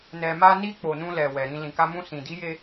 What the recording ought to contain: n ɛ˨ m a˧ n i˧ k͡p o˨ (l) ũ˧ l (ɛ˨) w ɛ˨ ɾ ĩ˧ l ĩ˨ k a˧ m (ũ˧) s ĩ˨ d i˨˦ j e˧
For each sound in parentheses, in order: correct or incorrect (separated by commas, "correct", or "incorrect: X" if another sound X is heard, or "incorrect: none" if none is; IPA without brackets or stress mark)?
incorrect: n, correct, correct